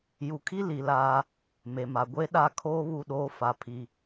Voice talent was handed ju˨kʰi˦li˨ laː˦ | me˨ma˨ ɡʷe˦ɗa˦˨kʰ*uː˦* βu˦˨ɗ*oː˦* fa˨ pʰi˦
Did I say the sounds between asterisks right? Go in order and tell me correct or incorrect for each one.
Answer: incorrect: oː˦, correct

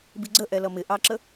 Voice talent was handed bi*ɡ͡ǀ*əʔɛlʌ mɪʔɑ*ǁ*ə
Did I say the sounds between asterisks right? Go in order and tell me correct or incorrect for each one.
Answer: correct, correct

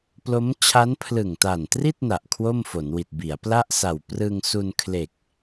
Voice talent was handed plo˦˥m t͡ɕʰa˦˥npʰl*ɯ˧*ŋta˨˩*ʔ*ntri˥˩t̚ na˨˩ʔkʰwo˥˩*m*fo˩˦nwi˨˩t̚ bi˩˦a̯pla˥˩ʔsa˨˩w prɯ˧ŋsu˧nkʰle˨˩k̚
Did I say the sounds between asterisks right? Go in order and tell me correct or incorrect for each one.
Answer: incorrect: ɯ˨˩, incorrect: none, correct

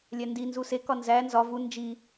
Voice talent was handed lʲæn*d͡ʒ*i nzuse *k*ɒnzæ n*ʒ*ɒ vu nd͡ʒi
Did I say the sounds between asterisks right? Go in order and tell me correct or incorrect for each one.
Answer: incorrect: d, correct, incorrect: z

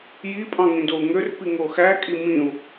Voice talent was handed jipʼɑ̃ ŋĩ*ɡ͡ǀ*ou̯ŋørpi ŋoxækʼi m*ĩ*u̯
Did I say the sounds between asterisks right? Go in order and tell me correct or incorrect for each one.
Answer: incorrect: d, correct

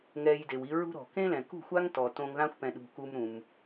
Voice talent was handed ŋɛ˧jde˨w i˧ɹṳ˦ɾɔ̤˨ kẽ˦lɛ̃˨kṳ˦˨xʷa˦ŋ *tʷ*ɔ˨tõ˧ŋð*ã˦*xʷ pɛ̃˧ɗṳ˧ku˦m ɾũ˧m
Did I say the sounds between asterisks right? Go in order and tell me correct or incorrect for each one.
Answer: incorrect: t, correct

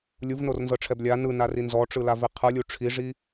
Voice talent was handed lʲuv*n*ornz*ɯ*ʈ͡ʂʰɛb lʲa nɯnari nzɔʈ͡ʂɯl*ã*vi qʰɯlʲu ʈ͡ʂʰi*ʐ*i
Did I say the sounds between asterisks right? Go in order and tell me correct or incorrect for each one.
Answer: correct, incorrect: ɤ, incorrect: a, correct

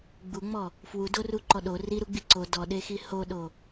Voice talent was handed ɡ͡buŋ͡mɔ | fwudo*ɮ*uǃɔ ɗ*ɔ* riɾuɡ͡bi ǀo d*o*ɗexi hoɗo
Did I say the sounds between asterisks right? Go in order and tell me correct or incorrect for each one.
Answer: incorrect: r, incorrect: o, incorrect: ɔ

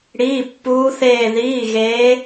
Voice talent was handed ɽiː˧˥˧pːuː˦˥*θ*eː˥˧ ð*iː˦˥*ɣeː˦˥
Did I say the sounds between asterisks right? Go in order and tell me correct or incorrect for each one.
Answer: correct, incorrect: iː˧˥˧

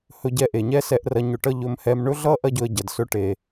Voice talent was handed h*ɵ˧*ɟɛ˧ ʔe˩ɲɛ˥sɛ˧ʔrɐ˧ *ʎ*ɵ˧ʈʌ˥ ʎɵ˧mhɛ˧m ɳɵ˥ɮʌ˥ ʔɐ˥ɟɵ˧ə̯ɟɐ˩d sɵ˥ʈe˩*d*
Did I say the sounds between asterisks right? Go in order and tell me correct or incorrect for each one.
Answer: correct, incorrect: ɲ, incorrect: none

